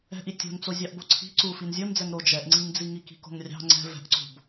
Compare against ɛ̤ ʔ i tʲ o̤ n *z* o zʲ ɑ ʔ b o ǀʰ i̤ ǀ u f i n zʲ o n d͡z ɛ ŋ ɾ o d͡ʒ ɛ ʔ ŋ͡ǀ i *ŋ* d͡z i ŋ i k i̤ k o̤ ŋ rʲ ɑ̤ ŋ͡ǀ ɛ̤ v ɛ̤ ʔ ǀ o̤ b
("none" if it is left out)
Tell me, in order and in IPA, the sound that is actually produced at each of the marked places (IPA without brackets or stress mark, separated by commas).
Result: t͡s, ŋ